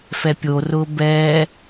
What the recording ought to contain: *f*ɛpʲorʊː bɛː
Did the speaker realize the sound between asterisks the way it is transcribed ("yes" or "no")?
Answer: yes